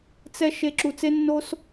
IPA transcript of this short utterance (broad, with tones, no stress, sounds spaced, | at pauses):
t͡s ɛ˦ ʃ e˦ ǁ u˧ t͡s e˦ nː o˦ s